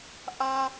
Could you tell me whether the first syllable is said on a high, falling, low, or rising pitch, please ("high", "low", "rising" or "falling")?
high